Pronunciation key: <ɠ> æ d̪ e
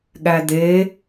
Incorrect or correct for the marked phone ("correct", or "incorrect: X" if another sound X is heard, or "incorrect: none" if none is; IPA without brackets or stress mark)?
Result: correct